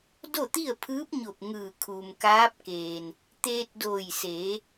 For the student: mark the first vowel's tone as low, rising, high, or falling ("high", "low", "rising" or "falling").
falling